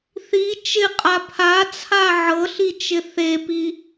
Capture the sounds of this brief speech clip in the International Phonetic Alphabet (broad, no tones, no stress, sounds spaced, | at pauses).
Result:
θ i t͡ʃ ɪ qʼ a pʰ a t͡sʰ a ʕ ɤ ɬ i t͡ʃ ɪ θ e p i